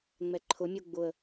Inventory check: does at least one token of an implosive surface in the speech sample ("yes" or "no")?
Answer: no